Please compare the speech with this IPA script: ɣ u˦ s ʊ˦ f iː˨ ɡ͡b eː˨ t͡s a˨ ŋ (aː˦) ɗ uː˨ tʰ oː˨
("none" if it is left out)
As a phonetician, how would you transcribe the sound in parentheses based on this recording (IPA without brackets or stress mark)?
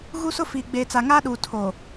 aː˦